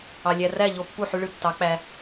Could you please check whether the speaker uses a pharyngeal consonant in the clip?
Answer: yes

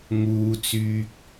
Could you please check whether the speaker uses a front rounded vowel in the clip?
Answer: yes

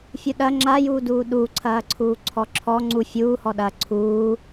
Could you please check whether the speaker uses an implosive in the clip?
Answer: yes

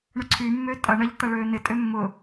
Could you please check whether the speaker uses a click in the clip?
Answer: yes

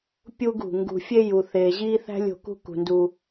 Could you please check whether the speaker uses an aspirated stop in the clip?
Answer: no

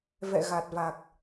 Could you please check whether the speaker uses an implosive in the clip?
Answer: no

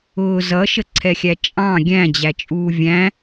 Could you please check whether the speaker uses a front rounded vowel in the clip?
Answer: no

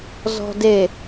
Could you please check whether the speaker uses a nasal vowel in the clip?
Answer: no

